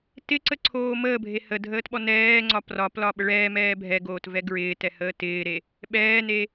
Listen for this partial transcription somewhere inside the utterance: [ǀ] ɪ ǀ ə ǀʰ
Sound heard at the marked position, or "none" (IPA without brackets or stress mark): t